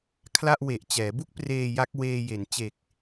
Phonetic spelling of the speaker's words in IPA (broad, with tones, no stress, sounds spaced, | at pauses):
kʰ l a˥˩ ʔ w e˨˩ ʔ t͡ɕ ɛː˩˦ b u˥˩ k̚ p r eː˧ j a˦˥ k̚ w eː˧ j e˩˦ n t͡ɕ e˨˩ k̚